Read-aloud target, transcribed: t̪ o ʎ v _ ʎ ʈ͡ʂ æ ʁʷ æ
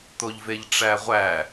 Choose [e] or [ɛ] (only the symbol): e